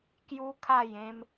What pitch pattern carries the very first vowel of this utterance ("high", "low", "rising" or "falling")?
high